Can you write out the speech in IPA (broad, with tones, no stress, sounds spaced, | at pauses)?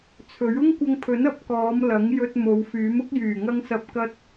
t͡sʰ ɵ˨˥ ɥ ʊ˥ ŋ kʷ ɐ˧ ŋ pʰ ɵ˨˥ n ɐ˧ p̚ k ɔː˨˧ m l ɐ˨˥ ŋ j ɵ˧ t̚ m o˨˧ w f yː˨˥ m ʊ˥ k̚ j yː˨˩ ŋ ɐ˧ ŋ s ɐ˨˥ p̚ k ɐ˥ t̚